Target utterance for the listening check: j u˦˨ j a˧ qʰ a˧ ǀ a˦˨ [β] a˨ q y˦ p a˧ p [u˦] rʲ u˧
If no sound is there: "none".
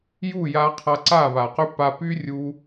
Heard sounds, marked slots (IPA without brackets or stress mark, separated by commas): β, y˦